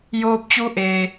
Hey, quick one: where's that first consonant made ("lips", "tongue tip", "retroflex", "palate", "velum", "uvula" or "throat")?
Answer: palate